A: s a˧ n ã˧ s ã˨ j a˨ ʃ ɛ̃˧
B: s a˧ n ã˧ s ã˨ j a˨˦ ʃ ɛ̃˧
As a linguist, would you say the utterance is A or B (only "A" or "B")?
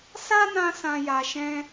A